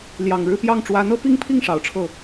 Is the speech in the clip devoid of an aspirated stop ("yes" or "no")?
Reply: no